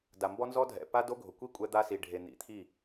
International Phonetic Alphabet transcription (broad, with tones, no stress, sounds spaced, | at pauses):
d a˨ m b ɔ˦ n z ɔ˦ dʱ ɛ̰˨ p a˦ d o˦ ɡʱ ʊ˨ kʷ i˦ kʷʼ ɛ˦ d̪ a˦ s i˨ ɖʱ e˨ n̪ ḭ˨ t̪ʰ i˦˨